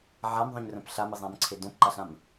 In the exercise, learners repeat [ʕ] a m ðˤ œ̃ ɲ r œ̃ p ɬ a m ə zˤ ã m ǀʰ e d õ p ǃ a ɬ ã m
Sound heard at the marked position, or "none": ʕ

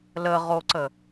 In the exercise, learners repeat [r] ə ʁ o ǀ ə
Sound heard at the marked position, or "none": l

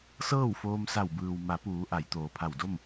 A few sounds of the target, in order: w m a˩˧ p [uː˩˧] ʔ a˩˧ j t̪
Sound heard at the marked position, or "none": uː˩˧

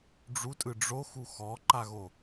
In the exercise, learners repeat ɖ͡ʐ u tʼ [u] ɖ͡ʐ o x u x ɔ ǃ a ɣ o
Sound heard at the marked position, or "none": ɯ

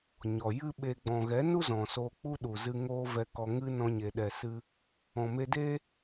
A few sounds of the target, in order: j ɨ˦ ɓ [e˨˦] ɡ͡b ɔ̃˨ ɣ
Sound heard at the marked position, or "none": e˧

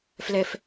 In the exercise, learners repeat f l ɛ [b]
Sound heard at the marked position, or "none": f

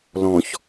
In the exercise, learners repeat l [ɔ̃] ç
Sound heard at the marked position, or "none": ɔ̃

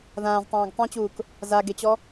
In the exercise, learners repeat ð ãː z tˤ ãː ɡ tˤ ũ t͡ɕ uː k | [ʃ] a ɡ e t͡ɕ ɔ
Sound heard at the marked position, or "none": z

